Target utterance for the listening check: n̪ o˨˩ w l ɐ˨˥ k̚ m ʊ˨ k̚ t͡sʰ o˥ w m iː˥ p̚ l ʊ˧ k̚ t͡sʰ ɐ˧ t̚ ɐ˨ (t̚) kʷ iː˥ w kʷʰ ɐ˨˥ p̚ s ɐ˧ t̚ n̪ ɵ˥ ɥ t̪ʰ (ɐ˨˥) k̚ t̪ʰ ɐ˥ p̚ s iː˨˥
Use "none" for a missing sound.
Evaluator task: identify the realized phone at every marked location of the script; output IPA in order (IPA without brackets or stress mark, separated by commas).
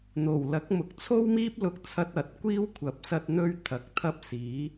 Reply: t̚, ɐ˨˥